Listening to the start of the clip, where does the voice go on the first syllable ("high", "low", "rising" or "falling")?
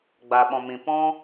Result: low